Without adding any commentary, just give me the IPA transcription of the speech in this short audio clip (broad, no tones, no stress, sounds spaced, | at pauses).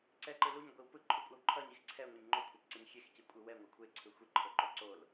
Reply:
ǀ ɛ ǃ ɯ l u ɲ ɡʷ i w p ɯ ǃʰ u kʷʼ a w ǃʰ ʌ ɲ i x ǀʰ ɛ ŋʷ e ɲ ŋ͡ǃ o kʷʰ a p ǀ ʌ ɲ xʲ e x c i kʷʼ ɯ w ɛ ŋʷ ʌ kʷʰ e ǀʰ ɯ xʷ i ǃʰ o ǃ o ǀ o l